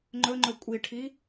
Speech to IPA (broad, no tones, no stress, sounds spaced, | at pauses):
ŋ͡ǃ ɵ ŋ͡ǃ ɵ kʷʼ i ʈʰ i